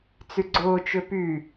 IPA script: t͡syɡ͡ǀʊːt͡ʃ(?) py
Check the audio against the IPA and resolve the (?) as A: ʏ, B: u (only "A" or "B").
A